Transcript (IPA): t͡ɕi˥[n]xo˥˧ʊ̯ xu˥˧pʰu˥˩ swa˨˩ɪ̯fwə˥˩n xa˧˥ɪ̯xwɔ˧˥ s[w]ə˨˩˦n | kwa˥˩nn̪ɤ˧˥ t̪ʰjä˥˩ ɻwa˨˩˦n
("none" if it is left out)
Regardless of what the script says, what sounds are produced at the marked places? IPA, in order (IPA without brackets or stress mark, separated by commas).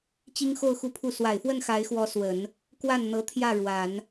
ŋ, w